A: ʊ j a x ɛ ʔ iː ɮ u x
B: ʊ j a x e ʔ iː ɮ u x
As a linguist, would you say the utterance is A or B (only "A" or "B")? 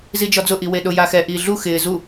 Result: A